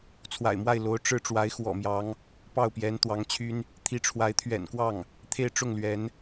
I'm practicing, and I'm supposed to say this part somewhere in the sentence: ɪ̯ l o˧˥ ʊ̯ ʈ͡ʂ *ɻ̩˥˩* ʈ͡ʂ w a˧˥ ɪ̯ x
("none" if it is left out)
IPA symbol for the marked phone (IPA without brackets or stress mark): ɻ̩˥˩